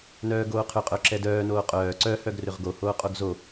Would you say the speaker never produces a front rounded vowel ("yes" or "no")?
no